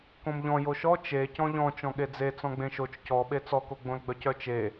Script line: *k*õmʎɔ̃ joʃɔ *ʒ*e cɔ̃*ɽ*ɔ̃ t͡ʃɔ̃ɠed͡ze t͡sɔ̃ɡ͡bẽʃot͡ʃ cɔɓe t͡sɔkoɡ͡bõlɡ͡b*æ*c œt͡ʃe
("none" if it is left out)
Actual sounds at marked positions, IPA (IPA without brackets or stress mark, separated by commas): k, t͡ʃ, ʎ, œ